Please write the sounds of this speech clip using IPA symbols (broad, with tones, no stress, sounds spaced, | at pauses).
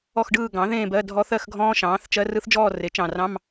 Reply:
ɔ˥˧ x ɖ ɯː˥˧ ɡ ɑ̃˩˥ ð ẽː˥˧ b ɜ˧˥˧ dʱ ɔ˦˥ θ ɜ˥˧ x ɡʱ ɔ̃ː˦˥ ʃ ɑ̃ː˩˥ θ t͡ʃ ɜ˦˥ r ɯ˦˥ θ d͡ʒ ɔː˥˧ r e˩˥ t͡ʃ ɑ̃˨˩ r ɑ̃˧˥˧ m